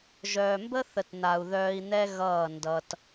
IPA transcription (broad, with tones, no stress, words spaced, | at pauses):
ʒœː˨mbə˦θə˨t n̪a˨u̯ ðœː˧i̯n̪ɛ˦ɣʌː˦˨ ndʌ˧t